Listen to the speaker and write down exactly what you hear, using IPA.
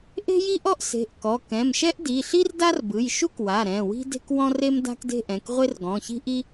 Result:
ʔ e̤˥ j i˥ ʔ ɔ˥ ʔ s e̤˩˧˩ ʔ k ɔ˩˧˩ k ɛ̃˩˧˩ m ʃ ɛ˥ ʔ d i˩˧˩ ɬ i˥ r d a˥ r b ɯ˩˧˩ j ʃ u˥ k w a˩˧˩ ɾ ɛ̃˩˧˩ w i̤˥ d e̤˥ k w ɔ̃˥ r e˥ m d a̤˥ k d e̤˥ ʔ ɛ̃˩˧˩ k ʁʷ e˥ r ɡ ɔ̃˩˧˩ ç i̤˥ ʔ i˥

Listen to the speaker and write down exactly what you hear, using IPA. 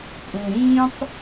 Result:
pʼ ũ˨ ɾ ĩː˦ tˤ

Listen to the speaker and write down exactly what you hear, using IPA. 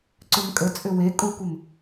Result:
ǀ ʏ m kʼ ə t͡sʼ ʏ w e kʼ u kʷ ə m

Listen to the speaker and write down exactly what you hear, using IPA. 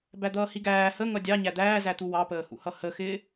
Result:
b æ d̪ ʌː h i ɡ æː h ə ŋ ʌ dʲ ɑ ɲ æ d̪ æː z æ t̪ u w ɑ p əː h ṵ h ʌ h ə x ɪː

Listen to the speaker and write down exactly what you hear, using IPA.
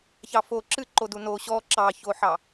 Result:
ç ɑ f o ǁ ɨ ǃ o d u n o ɕ ɔ ǁ ɑ ç o ħ ɑ

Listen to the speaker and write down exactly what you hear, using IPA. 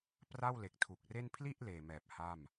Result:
p r a˥˩ w l e˨˩ k̚ tʰ u˨˩ k̚ r e˥˩ n pʰ l i˥˩ ʔ l eː˨˩ m ɛː˨˩ p̚ h a˥˩ m

